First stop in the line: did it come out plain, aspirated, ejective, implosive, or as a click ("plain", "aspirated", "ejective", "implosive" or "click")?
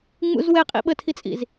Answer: ejective